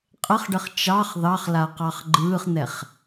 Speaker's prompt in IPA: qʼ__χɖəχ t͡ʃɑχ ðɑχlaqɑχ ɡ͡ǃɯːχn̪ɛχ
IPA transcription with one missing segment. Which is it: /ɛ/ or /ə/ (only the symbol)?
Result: ə